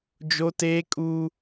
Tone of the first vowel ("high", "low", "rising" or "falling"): high